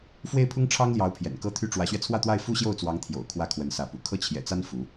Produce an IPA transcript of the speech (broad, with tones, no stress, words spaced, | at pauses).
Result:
fwe˥˩ɪ̯pʰʊ˥ŋʈ͡ʂʰɑ˥ŋljɑ˧˥ʊ̯ pʰjɛ̰˨˩nkɤ˥t̪ʰy˥ ʈ͡ʂwä˧˥ɕɥɛ˧t͡sʰwä˥˧t̪wa˥˩ɪ̯ fu˥ɕjo˥˩ʊ̯t͡swɑ˧˥ŋ t̪ʰjo̰˨˩ʊ̯ kʰwä˥˩kʰwə˧˥nsä˧˥pṵ˨˩ kʰɤ˥˩t͡ɕʰjɛ̰˨˩t͡sa˥n fu˧˥